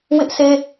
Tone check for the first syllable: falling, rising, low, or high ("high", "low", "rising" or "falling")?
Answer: high